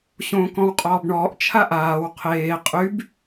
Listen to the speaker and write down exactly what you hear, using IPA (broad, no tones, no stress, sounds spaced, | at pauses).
ɕ õː k ɔ̃ w qʼ ɔː b ɳ ɔː ʔ t͡ʃʰ a ʔ aː w qʰ eː qʼ y b